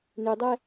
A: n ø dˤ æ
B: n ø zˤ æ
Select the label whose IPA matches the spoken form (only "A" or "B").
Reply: A